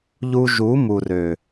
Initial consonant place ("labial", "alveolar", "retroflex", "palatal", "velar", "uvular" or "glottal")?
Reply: palatal